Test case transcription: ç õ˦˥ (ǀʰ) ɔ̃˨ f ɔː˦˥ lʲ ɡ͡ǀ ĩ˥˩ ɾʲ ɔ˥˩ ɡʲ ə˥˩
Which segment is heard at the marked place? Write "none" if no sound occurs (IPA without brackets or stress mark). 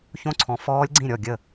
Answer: ǀʰ